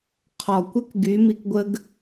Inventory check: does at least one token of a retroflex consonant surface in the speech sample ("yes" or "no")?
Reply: no